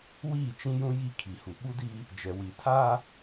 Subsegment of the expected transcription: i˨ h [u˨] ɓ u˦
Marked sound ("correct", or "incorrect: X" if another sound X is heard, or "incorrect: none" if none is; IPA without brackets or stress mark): correct